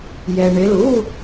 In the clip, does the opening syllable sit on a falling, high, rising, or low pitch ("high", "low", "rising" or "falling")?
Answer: low